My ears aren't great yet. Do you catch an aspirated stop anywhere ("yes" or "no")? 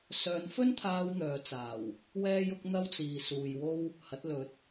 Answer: yes